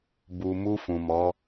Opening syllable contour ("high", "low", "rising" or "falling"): low